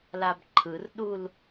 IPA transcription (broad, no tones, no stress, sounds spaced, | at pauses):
l a b ǃʰ ɯ r ɗ u l